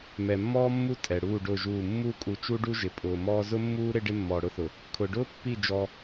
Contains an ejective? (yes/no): yes